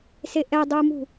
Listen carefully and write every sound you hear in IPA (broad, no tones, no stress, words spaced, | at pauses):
seʔɛdˤumṳ